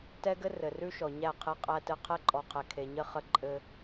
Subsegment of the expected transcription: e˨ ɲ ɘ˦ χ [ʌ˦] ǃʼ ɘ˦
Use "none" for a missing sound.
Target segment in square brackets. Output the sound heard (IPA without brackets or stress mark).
ə˦